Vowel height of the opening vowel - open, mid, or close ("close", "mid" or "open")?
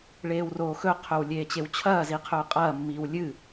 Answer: mid